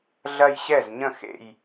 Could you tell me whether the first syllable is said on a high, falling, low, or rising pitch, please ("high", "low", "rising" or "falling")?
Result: falling